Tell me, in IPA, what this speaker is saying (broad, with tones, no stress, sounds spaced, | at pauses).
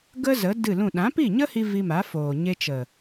ɡ ə˦ z ə˨˦ d ɨ˦˨ l ũ˦˨ ɗ ã˨˦ p i˦˨ ɲ ə˦ h i˧ v i˧ m a˨˦ f oː˨ ɲ e˧ t͡ʃ ə˨